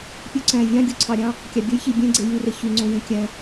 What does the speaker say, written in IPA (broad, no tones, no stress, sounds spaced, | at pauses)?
pʲ u ǀ æ̃ vʲ ɑ̃ ɡʲ u ǀʰ ɑ ɾʲ ɑ̃ | kʲ ɑ bʲ o j ç i bʲ ẽ ɡ͡ǀ e j y r e ç y ŋ͡ǀ õ j ẽ kʲ æ̃